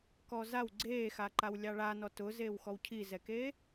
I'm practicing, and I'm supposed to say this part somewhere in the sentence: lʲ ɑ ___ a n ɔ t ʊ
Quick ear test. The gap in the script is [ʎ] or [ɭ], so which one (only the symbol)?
ɭ